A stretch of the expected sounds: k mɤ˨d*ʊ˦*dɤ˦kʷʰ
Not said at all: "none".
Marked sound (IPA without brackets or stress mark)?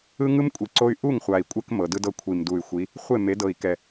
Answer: ɯ˦